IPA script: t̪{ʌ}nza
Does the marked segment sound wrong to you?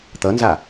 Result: no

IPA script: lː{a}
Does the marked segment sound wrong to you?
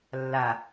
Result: no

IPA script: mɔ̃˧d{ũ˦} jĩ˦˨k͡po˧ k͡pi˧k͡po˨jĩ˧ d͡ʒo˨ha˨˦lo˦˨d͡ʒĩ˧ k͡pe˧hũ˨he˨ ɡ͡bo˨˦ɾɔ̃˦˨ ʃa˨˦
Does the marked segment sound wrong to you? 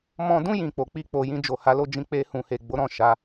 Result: no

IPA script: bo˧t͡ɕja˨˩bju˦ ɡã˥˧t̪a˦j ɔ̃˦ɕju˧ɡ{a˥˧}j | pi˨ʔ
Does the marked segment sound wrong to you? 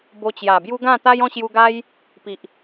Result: yes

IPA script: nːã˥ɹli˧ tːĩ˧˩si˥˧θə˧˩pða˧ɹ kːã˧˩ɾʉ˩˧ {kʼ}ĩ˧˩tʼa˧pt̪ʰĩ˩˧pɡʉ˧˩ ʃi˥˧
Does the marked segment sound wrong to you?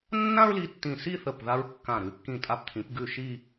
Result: yes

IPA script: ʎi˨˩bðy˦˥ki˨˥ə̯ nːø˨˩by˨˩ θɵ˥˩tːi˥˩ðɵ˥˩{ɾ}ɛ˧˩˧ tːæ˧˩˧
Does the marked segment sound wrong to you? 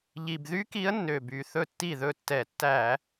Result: yes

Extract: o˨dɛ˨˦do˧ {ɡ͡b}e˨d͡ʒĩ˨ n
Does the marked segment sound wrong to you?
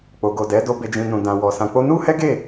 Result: yes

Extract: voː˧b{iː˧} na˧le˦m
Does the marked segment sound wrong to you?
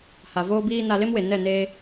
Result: no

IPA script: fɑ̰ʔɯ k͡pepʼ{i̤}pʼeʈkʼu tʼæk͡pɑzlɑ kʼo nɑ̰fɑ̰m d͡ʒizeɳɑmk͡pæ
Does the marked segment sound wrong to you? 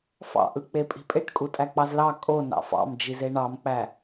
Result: no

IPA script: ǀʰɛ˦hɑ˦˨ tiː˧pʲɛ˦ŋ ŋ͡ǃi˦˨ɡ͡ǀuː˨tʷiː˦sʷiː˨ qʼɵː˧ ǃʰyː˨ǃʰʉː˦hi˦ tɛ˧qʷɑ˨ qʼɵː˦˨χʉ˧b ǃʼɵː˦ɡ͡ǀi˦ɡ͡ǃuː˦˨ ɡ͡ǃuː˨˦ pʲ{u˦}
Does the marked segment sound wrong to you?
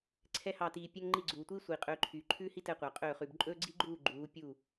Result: yes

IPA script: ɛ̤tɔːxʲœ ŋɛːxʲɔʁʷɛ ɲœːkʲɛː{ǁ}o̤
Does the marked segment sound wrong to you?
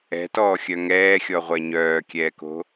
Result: yes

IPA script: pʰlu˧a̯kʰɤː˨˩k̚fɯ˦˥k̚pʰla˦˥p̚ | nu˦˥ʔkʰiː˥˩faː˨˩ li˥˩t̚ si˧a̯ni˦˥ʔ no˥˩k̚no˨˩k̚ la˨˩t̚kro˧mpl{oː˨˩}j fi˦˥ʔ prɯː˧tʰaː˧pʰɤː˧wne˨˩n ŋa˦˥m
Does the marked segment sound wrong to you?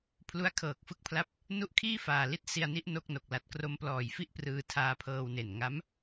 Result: yes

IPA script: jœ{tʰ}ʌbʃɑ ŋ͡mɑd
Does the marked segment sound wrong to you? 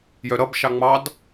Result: yes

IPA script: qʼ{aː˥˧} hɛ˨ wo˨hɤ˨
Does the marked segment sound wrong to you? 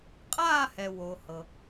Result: no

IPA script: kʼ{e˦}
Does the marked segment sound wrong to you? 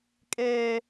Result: yes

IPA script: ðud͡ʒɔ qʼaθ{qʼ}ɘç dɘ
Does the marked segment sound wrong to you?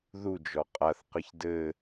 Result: yes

